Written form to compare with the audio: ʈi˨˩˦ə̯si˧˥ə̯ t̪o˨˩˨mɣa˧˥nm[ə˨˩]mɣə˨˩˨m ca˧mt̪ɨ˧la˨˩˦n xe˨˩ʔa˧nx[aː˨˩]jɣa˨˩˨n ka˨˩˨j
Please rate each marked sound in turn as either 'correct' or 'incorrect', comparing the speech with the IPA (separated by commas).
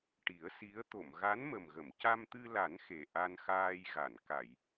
correct, incorrect